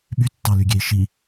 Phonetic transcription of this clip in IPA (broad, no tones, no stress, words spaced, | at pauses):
ɓytːɑlyɡʲei̯ ʃi